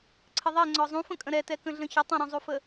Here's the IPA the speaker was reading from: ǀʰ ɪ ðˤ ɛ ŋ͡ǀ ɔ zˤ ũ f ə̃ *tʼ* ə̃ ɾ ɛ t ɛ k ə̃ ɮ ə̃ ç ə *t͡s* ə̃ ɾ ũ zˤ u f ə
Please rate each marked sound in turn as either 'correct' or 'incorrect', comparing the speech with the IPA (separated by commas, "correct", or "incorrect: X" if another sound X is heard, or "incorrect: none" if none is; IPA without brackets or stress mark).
incorrect: kʼ, incorrect: tˤ